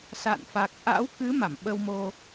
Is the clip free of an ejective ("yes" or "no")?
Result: yes